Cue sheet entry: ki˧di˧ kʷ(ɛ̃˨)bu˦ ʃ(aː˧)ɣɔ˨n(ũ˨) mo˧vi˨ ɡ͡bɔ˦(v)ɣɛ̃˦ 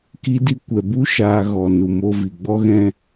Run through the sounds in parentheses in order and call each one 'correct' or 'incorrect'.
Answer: incorrect: ɛ˨, correct, incorrect: u˨, incorrect: none

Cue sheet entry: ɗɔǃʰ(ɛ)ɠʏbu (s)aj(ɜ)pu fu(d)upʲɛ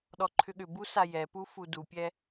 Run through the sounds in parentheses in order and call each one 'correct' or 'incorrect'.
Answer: incorrect: ʏ, correct, incorrect: ɛ, correct

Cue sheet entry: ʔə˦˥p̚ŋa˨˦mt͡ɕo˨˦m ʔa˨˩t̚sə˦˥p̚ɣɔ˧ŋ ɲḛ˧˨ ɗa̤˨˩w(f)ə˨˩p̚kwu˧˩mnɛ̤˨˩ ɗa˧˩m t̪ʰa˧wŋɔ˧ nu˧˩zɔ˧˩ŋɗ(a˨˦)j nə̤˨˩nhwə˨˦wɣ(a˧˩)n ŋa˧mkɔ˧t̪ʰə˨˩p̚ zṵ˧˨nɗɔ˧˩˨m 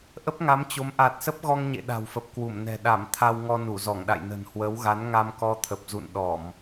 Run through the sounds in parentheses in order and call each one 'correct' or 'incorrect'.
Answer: correct, incorrect: a̰˧˨, incorrect: a˨˦

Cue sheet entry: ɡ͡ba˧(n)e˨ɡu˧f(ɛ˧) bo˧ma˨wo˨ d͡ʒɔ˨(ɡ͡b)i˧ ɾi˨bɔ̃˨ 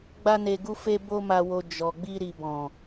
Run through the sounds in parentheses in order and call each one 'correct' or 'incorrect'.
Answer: correct, incorrect: e˧, correct

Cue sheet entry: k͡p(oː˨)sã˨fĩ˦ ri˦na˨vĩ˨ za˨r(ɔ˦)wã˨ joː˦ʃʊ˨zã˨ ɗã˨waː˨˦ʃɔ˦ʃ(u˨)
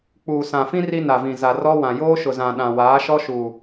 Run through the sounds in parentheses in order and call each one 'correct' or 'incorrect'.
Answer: incorrect: uː˨, correct, correct

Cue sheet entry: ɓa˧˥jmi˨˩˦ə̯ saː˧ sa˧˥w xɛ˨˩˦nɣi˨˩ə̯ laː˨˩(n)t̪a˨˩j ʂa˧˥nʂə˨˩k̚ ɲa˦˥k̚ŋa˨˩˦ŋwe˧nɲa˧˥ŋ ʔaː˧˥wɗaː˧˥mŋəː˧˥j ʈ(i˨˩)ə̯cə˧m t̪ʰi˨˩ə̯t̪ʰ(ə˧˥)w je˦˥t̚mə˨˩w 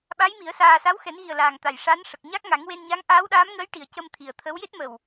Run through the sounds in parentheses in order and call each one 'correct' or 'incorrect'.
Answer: incorrect: ŋ, correct, correct

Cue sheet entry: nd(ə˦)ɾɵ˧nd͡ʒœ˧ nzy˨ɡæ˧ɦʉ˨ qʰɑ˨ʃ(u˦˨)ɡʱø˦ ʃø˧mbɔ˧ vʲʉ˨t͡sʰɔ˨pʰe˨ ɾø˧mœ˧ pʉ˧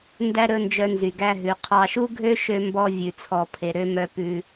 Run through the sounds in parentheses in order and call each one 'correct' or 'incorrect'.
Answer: incorrect: æ˦, incorrect: u˦

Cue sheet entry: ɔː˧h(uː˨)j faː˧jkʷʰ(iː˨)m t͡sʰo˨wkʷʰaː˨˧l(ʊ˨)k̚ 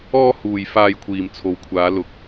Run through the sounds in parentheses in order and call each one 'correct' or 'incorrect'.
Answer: correct, correct, correct

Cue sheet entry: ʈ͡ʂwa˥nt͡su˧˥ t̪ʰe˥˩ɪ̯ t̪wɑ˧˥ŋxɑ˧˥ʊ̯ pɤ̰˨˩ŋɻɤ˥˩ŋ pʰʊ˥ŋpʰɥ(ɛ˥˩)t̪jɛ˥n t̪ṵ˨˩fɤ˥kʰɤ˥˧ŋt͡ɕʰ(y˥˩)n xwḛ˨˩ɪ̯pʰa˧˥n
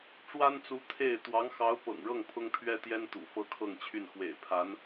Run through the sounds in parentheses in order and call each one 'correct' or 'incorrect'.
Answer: incorrect: ɛ˥, correct

